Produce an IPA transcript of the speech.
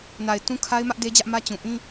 na˨ɪ̯tũ˦ kʰa˦ɪ̯mä˦ʔ de˦d͡ʑä˦ʔmä˦ t͡ɕũ˨ ʔĩ˦

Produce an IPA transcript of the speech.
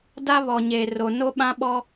da˦βɔ˨ɲe˨ ro˨no˦ ɓã˦ɓɔ˦

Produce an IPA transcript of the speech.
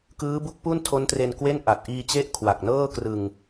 kɯː˦˥bu˦˥k̚ pu˥˩ntʰo˦˥ntre˧n kwe˥˩nʔa˨˩t̚ ʔiː˧t͡ɕe˦˥ʔkʰwa˨˩k̚ nɤː˥˩ krɯ˧ŋ

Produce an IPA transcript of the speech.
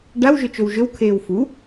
ɖaw ʒɵt͡ʃowʒɵw kʰeːwfu

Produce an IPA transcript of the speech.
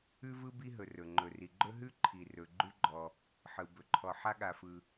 ʉ˥vɯ˥ bi˥ɦɵ˩ rɵ˩ ŋ͡ǃɵ˩ri˩ɡ͡ǃɵ˥ ɦʉ˥ǃʰi˩rɵ˩ ɡ͡ǃʉ˥ɡ͡ǃɔ˩ | ħɯ˩ bɵ˩ǃʰɔ˩ ħa˥ɠa˩fɯ˩

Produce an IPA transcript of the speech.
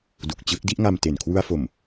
du˨˩k̚t͡ɕɯ˦˥k̚ di˥˩ʔŋa˧mte˨˩n kʰwu˧a̯fo˨˩m

